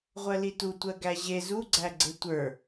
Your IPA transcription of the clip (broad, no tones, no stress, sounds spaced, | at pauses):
ʁʷ ɜ l i t u tʷ ɜ ɡ æ ʑ e z u ɡ͡ǀ æ ɡ͡ǀ e tʷ ə˞